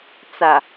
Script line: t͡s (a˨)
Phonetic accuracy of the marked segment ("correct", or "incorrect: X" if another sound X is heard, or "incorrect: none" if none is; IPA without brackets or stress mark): correct